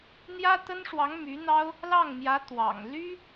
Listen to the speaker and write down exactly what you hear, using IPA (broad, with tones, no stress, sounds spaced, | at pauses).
n̪ j ä˥ t̪ ə˥ n ʂ w ɑ˧˥ ŋ m y˧˥ n̪ ɑ˥ ʊ̯ | l ɑ˥˩ ŋ m j ä˧˥ t̪ w ɑ̰˨˩ ŋ l y˥